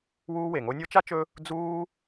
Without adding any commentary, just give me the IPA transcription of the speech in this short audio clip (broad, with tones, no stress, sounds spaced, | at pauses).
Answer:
w uː˦ w e˩ ŋ o˦ nʲ o˥ t͡ʃ a˥ t͡ʃ ɵ˦ | d͡z uː˦